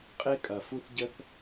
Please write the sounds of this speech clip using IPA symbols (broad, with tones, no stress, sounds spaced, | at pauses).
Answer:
qʼ e˥ kʼ ɐ˩ f u˥ θ ɟ ə˥ θ